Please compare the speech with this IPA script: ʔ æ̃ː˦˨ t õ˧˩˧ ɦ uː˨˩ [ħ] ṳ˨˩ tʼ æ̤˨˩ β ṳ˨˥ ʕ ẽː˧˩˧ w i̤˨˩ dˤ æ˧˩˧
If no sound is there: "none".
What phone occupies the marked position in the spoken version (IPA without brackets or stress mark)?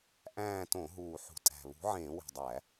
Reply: ħ